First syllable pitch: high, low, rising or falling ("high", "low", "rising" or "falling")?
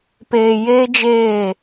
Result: low